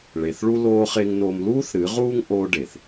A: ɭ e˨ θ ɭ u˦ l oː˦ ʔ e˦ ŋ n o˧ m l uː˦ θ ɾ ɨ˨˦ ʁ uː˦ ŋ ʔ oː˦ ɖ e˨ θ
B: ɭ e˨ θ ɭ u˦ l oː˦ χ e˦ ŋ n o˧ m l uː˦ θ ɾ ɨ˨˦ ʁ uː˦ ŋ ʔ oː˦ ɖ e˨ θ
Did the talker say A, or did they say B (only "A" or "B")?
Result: B